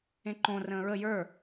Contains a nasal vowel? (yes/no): yes